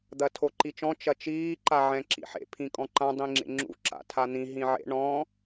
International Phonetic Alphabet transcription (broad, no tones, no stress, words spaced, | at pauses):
d̪ɐtʰoǃit͡ʃɔ̃ t͡ʃɐt͡ʃiː ǃaʕɛ̃ǁḭħḛ pʰĩkʼɔ̃ǃã dˤĩŋ͡ǁḛŋ͡ǁṵ ǁa̰tʰan̪ĩ ɦĩʕḛ ɳɔ̃